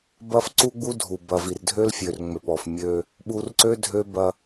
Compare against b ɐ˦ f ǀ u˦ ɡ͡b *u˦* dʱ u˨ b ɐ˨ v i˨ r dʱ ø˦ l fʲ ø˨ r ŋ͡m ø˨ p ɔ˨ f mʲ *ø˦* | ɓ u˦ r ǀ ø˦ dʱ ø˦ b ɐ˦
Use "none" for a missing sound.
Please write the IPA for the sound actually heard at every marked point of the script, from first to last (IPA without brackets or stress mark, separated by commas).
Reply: u˦, ø˦